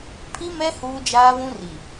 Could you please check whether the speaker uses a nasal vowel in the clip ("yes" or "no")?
yes